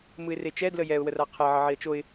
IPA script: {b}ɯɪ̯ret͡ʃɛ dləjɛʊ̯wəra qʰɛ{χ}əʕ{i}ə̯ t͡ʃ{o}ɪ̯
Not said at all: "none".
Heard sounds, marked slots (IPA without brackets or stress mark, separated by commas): m, ʕ, i, o